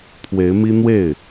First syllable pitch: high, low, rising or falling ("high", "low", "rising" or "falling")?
rising